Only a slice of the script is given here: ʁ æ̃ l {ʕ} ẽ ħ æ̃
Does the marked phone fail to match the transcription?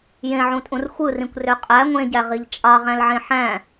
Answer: no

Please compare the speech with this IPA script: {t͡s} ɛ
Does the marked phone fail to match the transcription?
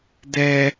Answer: yes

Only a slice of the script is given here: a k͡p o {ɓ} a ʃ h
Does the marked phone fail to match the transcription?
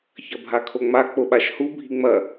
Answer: no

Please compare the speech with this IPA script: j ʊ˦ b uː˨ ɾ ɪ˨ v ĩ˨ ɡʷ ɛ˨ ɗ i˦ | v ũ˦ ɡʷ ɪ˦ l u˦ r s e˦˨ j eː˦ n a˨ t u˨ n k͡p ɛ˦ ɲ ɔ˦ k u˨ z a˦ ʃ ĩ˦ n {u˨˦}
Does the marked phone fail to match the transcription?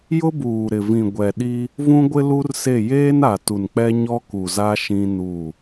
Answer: yes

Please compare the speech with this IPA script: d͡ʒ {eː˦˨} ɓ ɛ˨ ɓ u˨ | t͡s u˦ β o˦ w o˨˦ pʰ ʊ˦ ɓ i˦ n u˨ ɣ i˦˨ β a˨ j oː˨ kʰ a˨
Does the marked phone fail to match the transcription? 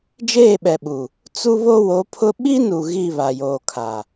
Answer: no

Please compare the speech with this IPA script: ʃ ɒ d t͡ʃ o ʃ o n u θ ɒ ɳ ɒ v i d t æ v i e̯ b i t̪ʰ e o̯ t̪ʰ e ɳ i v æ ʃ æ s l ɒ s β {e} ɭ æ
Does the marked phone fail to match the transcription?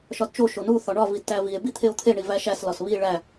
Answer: yes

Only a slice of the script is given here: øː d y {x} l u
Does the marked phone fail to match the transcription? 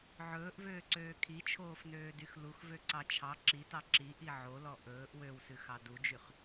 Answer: no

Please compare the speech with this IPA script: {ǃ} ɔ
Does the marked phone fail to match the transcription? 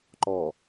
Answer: no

